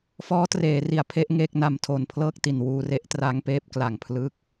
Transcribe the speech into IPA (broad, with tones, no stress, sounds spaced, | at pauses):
f ɔː˦˥ t r eː˩˦ r i˩˦ a̯ pʰ e˦˥ ʔ ŋ eː˥˩ k̚ n a˧ m tʰ o˨˩ n pʰ l ɤː˥˩ k̚ t i˨˩ n w uː˧ r e˦˥ ʔ t r a˦˥ ŋ p eː˦˥ p̚ k l a˨˩ ŋ pʰ l ɯ˦˥ k̚